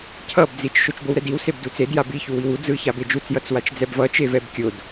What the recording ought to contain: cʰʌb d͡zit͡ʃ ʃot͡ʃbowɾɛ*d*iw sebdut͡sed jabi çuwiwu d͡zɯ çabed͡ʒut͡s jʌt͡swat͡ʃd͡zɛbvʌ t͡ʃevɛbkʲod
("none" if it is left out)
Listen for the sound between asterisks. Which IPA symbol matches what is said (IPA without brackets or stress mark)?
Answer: d